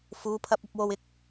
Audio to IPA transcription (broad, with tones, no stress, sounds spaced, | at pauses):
f uː˨˧ pʰ ɐ˧ p̚ ɐ˨˥ p̚ w o˧ w ɪ˧ k̚